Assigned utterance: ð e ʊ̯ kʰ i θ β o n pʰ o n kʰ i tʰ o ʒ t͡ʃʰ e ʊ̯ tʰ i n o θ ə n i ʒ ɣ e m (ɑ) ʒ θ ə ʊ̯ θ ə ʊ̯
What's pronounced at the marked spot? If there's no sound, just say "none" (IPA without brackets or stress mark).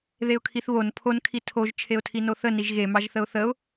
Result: ɑ